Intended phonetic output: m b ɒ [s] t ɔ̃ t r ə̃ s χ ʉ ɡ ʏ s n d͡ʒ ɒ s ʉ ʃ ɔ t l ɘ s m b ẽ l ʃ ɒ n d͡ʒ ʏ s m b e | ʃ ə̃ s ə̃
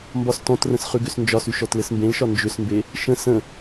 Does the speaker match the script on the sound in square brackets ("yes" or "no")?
yes